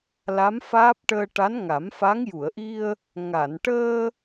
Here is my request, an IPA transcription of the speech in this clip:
l a˧˥ m f aː˦˥ p̚ ʈ əː˧ ʈ a˧˥ n ŋ a˨˩˦ m f a˧˥ ŋ j u˨˩˨ ə̯ ʔ i˧ ə̯ | ŋ a˨˩˨ n ʈ əː˧

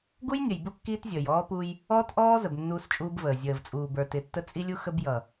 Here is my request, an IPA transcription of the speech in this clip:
ɡ u˦ j nʲ ə˨ j b u˦ kː iː˦ t zʲ əː˨ j ɔː˦ p u˦ j | ɔː˦ t ʔ ɔː˦ z ə˨ b nː uː˦ s t͡ʃʼ uː˦ b v əː˨ zʲ əː˨ v t͡sʼ uː˨ b ə˞˨ t ɪ˨˦ tː ə˦ t͡sʼ i˦ lʲ u˦ x ə˦ b j ʌ˨

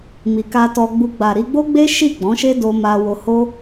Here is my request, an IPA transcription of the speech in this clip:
m i˨ k a˧ t ɔ˧ ɡ͡b u˧ ɡ͡b a˨ ɾ i˧ ɡ͡b o˦ ɡ͡b e˦ ʃ i˦˨ ɡ͡b ɔ̃˨˦ ʃ e˦ d o˧ m a˧ w o˧ h o˦

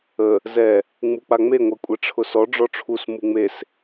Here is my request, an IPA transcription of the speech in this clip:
ə | z ɛ | ŋ͡m u k͡p a ŋ͡m e ŋʷ ɛ kʷʼ ɛ ʈ͡ʂʰ ʊ s ɔ ɖ͡ʐ ɔ ʈ͡ʂʰ u s m u ŋ͡m e s

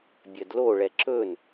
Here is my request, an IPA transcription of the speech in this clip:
bʲ ɜ d l o ɭ ɛ ǁ ɵ n

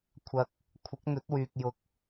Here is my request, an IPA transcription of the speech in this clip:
kʷʰ ɐ˨ k̚ | kʷʰ ɪ˨˥ k̚ n̪ ɵ˨˥ t̚ w yː˨ k̚ j ʊ˨ k̚

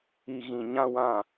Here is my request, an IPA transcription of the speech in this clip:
i˨ ɣ ĩ˨ ɲ ã˦ w ã˦˨

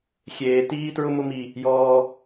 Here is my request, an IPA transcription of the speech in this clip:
xʲ eː˧ t iː˥ t ɹ ʊ˥ m ʊ˥ m i˧ | j ɔː˧

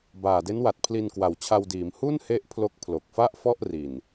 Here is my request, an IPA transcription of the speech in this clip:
b aː˨˩ d e˦˥ n w a˨˩ t̚ pʰ l i˧ n k w a˨˩ w t͡ɕʰ a˧ w d iː˩˦ m h u˥˩ n h e˦˥ ʔ pʰ l o˦˥ k̚ pʰ l o˨˩ k̚ f a˥˩ ʔ f ɔ˥˩ ʔ r i˨˩ n

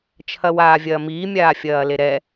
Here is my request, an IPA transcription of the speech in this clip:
t͡ʃʰ ɐ w aː vʲ ɐː m iː mʲ aː fʲ ɐː l e ɾ ɛ

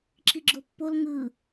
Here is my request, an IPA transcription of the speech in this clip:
ǁ i ɡ͡ǁ o pː o l ŋ ɯ

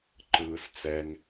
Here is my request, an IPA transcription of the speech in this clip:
ǃ ɯː s t͡s ɛ ŋ

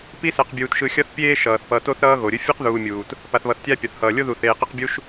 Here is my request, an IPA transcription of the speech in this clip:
p i˥ s ɛ˨ q bʲ uː˨ t ʃ ɯ˨ xʲ ʌ˦ θ pʲ eː˦ ʃ ʌː˩ θ p ʌ˨ t o˦ θ ɾ ʌː˦ ɣ o˩ ɾʲ ɯ˦ fʲ e˥ q ð uː˨ mʲ uː˩ t | p a˨ θ β ʌ˨ θ tʲ a˦ pʲ ʌ˩ θ h ʌː˩ lʲ o˥ ð u˨ θ eː˨ q e˦ q bʲ u˦ ʃ

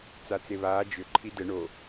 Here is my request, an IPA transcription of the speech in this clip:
t͡s a t͡s e β aː d͡ʒ ʏ ǃʰ i d ə ɳ o

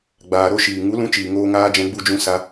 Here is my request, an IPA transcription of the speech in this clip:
ɡ͡b aː˨ ɾ o˧ ʃ iː˨ ŋ u˨˦ l ũ˧ t͡ʃ iː˨ ŋ oː˧ ŋ aː˧ d͡ʒ ɛ̃˧ ɡ͡b u˧ d͡ʒ ũ˧ s a˧

